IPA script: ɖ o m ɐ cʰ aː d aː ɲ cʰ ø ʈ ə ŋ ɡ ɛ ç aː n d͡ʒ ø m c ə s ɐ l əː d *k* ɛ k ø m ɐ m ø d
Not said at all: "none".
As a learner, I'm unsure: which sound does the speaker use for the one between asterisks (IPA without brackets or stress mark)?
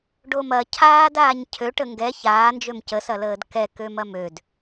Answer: k